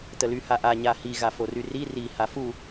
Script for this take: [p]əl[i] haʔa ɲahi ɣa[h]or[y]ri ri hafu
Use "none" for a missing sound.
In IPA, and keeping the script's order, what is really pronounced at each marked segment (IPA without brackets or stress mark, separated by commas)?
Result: t, y, f, y